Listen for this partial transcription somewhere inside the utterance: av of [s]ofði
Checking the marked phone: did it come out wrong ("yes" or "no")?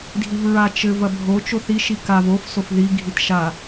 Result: no